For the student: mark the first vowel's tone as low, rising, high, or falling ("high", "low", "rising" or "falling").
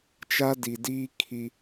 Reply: high